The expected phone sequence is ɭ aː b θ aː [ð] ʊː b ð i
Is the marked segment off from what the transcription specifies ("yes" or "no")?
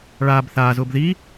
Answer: yes